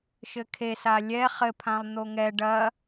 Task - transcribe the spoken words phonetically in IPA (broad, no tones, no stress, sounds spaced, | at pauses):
ʃ ɘ kʰ e s a lʲ ɛ χ ɘ pʰ ã lˠ n̪ o ŋ ɛ ɖ ɐ